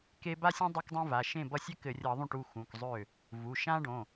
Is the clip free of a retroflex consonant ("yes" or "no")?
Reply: no